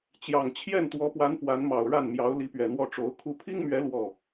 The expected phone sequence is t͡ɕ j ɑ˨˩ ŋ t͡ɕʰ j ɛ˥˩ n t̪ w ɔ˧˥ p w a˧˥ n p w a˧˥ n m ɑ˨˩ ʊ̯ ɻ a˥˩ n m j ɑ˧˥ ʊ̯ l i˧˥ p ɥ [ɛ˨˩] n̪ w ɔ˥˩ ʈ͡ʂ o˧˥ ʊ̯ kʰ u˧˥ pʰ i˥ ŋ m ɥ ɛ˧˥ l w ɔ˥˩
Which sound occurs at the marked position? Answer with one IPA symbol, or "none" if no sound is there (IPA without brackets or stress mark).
ɛ˨˩